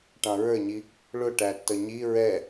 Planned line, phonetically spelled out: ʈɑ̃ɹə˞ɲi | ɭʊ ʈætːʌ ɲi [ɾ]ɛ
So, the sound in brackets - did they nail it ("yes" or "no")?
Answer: no